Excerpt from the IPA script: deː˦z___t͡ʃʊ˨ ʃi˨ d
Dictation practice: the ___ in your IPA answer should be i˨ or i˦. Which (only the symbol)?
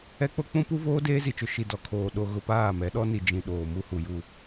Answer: i˨